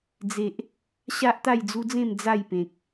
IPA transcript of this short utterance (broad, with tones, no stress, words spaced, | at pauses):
d͡ze˨ʔ | ɕa˦ʔt̪a˥˧jd͡zu˦d͡zẽ˥˧m d͡za˥˧jpẽ˨k̚